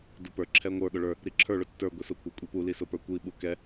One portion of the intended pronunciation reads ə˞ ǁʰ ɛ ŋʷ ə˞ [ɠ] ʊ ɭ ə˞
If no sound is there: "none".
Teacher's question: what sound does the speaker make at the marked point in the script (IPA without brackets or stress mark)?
ɠ